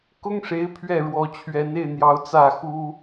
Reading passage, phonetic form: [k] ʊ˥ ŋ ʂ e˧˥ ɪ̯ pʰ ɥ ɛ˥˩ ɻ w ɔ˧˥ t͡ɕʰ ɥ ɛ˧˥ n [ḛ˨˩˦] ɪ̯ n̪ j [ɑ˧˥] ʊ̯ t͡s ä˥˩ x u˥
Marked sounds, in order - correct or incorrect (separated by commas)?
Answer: correct, incorrect, correct